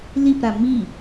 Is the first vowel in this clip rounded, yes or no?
no